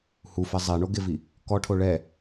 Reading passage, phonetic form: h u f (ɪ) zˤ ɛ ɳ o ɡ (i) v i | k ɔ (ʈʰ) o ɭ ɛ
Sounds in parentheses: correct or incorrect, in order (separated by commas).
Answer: incorrect, incorrect, correct